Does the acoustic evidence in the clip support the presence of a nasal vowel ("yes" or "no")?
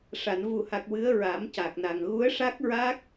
no